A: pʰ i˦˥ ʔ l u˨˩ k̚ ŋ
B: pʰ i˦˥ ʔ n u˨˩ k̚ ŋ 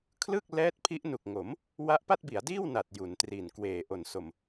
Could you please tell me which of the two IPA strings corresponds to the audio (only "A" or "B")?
B